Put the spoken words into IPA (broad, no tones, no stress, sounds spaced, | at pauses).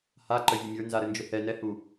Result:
h a ǃ ə vʲ ə mʲ ə˞ n z a ɾ ə n d͡ʒ ʊ h ɛ n ɛ h u